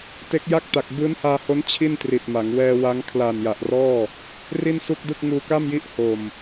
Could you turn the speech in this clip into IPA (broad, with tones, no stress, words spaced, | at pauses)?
te˦˥k̚ja˥˩k̚ta˨˩k̚ bɯː˦˥nhaː˧ho˦˥n t͡ɕʰi˥˩ntri˨˩t̚ma˩˦ŋ wɛː˧wa˦˥ŋ kʰlaː˨˩nja˨˩ʔrɔː˥˩ | ri˥˩nsu˥˩k̚dɯ˥˩k̚ ŋuː˧ka˥˩mji˦˥ʔ ho˨˩m